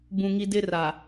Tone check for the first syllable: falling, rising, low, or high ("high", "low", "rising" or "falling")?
low